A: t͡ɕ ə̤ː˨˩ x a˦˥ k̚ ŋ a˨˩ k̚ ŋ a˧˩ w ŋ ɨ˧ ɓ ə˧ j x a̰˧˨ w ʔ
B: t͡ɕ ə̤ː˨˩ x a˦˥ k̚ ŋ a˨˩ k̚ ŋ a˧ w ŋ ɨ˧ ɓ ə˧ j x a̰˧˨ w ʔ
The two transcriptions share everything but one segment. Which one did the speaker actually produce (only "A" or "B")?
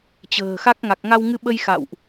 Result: B